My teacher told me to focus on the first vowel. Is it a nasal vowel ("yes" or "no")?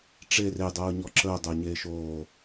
no